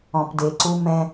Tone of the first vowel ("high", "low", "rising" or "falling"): low